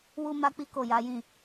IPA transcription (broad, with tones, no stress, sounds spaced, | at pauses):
w u˦ m a˦ k͡p i˦ k o˦˨ j a˨˦ j ĩ˦˨